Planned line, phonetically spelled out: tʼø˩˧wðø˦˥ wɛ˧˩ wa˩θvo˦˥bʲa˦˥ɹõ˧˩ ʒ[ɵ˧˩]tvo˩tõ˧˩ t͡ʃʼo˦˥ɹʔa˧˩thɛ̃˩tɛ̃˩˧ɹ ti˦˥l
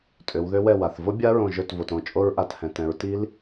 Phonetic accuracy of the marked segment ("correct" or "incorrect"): correct